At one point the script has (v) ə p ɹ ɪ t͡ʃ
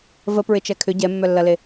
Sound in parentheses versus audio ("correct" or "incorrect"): correct